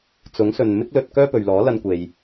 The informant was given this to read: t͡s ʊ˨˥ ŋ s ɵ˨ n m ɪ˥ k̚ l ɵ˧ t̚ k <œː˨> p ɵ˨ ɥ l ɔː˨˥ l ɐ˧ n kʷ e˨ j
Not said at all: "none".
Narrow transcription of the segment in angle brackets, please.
œː˥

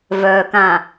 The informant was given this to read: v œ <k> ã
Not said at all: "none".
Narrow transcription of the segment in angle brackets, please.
k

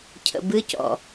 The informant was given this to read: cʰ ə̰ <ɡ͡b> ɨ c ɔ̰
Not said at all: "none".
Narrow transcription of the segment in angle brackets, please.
b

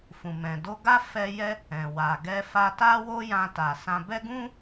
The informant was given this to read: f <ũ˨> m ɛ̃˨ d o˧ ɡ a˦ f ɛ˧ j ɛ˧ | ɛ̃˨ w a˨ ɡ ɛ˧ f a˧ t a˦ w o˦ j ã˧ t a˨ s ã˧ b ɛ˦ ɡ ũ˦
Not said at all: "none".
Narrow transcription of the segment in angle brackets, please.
ũ˨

